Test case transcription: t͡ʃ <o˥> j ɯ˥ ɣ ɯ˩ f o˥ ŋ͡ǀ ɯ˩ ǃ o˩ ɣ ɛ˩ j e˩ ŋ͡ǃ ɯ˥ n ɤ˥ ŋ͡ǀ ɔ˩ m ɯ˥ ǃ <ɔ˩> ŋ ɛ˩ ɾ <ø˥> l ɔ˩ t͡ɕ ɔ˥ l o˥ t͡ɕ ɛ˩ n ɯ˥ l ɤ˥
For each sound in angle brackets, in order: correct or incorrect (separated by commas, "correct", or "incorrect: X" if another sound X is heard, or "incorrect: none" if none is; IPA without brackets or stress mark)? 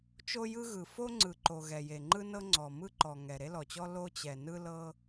correct, correct, incorrect: e˥